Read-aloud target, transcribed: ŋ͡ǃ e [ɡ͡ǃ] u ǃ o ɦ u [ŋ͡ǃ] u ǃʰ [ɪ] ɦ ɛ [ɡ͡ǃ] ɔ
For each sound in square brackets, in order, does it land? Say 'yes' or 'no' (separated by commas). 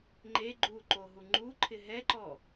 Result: yes, yes, yes, no